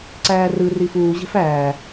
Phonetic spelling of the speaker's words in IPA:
ǀ æː r ɯ r i f uː ʑ e̤ f æː

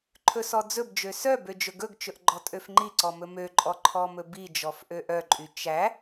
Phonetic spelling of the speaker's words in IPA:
ǃʰ ɵ s ɔ d͡z ɵ b d͡ʒ ø s œ b ø d͡ʒ ɵ ɡ ɵ ɡ t͡ʃ ɵ ʔ ɡ͡ǃ ɔ tʼ ø f ŋ͡ǃ i ǀ ɔ m ɵ m ø ǃʼ ɔ ǃʰ ɔ m ɵ b i d͡ʒ ɔ f ʔ ø ʔ œ ǃʼ y t͡ʃ æ

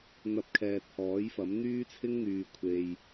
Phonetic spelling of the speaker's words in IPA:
n̪ ɐ˧ p̚ kʰ ɛː˨ t̚ h ɔː˨˥ j f ɐ˨˥ m n̪ yː˥ t͡sʰ ɪ˥ ŋ n̪ yː˨ kʷʰ e˨ j

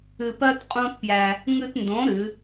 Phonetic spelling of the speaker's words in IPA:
ɨ˧ p ɜ˦ t qʼ õ˦ t p j æ˧ | ŋ ɨ˧ t n d õ˨˦ ɾ ɨ˨˦

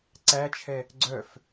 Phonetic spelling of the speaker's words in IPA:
ǀ æ t͡ʃʰ ɛ | ɡ͡ǀ œ f

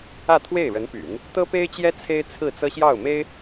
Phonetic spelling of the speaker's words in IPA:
ä˥˧ t̪ʰ w e˥˩ ɪ̯ ɻ ə˧˥ n p y̰˨˩˦ n | t̪ ɤ˥ p e˥ ɪ̯ t͡ɕ j ɛ˥ t͡sʰ e˥ ɪ̯ t͡sʰ ɹ̩˥˩ t͡s ɤ˥ ɕ j ɑ˥˩ ʊ̯ m e˥ ɪ̯

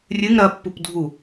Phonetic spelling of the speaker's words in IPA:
rʲ ɨ ŋ ɾ ɐ pː u p dʱ u

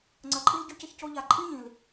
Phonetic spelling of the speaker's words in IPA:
ŋ͡ǀ ɐ˧˥ ǃʼ i˥ l ɟ y˥ c ə˥ ç c o˥ ʎ a˧˥ ǃʼ i˥ ɲ ĩ˨˩ l

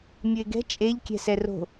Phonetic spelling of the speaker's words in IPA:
mʲ ʉ e̯ ɡ ɛ̤ t͡ʃʼ e ʎ kʲ ɛ̤ s ɛ r o̤

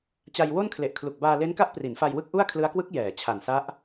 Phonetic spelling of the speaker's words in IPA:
t͡ɕ a˧ j w o˥˩ n kʰ l e˨˩ ʔ kʰ l u˨˩ k̚ b aː˧ l e˦˥ n k a˦˥ ʔ p r i˩˦ n f a˧ j w ɯ˦˥ k̚ ʔ u˥˩ a̯ kʰ l ɯ˦˥ a̯ k w ɯ˦˥ k̚ j ɛː˩˦ t͡ɕʰ a˨˩ n s a˦˥ ʔ

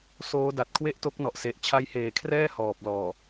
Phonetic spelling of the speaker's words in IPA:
s oː˦˥ d a˨˩ t̚ kʰ w e˥˩ ʔ t o˦˥ k̚ n ɔ˨˩ ʔ s e˨˩ ʔ t͡ɕʰ a˦˥ j h eː˨˩ kʰ r ɛː˥˩ h ɔː˨˩ p̚ l ɔː˨˩

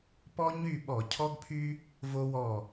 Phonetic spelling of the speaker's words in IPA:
p ɔ˦ ɲ y˦˨ ɓ ɔ˧˩˧ cʰ ɔ˦ ɡ pʰ y˦ | v o˦ w ɔ˦˨

